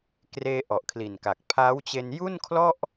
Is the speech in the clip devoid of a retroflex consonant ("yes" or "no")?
yes